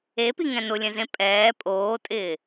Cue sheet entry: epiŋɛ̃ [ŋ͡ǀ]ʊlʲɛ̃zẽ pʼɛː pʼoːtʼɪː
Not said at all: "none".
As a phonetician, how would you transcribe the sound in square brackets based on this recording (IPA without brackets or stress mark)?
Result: n